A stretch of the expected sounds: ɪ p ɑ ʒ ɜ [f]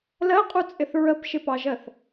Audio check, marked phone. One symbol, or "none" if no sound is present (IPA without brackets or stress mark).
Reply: θ